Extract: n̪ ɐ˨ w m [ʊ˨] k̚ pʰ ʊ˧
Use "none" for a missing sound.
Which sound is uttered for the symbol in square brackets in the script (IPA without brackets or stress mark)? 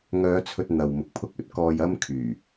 ʊ˨